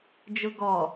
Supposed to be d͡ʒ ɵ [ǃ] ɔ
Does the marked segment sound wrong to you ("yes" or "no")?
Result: yes